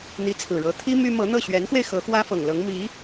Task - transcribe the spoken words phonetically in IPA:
n̪ i˧˥ t͡sʰ ɹ̩˨˩ ɻ ɤ˧˥ t̪ʰ i˥ m y˥ m ɤ˧˥ n̪ ɤ˥˩ ɕ ɥ ɛ˧˥ n x w e˧ ɪ̯ x ɤ˧˥ x w ä˥ f ɤ˨˩ ŋ l ɤ˧˥ ŋ m i˧˥

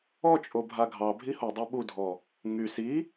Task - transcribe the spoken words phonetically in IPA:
ɔ t͡ʃʼ o bʱ a ɡʱ ɑ bʱ i h o dˤ ɑ ɓ u dʱ ɔ | ŋ y s i

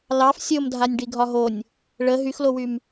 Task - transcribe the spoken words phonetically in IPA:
l ɑ f sʲ o m dʱ a nʲ ɖ i ɡʱ ɒ ɦ o nʲ | ɭ ə ɦ y x l o w y m

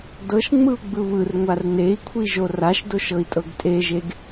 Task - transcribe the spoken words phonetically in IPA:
d ɤ ʃ ŋ͡m ɯ u̯ ɡ͡b ɯ β ɯ r ŋʷ a r n e i̯ kʷʰ i ʒ o r a ʃ d o ʃ ɤ i̯ tʼ ɤ ɡ tʼ e ʒ e ɡ

